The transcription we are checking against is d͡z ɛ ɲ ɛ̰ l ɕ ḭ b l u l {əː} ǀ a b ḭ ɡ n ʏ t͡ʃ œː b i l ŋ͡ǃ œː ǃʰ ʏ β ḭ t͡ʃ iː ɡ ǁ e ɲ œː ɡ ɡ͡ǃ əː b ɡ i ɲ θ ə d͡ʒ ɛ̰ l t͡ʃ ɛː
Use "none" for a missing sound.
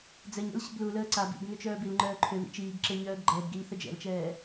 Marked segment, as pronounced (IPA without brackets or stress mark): əː